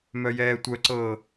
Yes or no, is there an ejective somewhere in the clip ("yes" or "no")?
no